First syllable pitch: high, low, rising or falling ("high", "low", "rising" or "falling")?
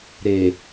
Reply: low